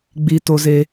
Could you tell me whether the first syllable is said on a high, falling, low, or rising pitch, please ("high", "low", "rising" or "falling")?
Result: high